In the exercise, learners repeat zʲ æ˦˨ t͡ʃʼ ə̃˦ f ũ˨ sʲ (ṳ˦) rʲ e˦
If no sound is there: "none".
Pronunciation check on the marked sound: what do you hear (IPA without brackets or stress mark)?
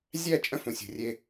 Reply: ṳ˨